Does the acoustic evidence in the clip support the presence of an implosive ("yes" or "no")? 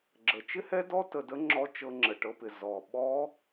yes